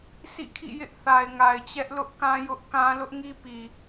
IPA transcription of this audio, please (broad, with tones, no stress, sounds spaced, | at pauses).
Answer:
sʰ ḭ˦˨ kʰ ḭ˦˨ j ɪ˦ ʔ θ a˨ ɪ̯ ŋ a˨ ɪ̯ t͡ɕ ɛ˦ ʔ l ʊ˦ ʔ k ã˦ j ʊ˦ ʔ k ã˦ l ʊ˦ ʔ ŋ i˦ p i˨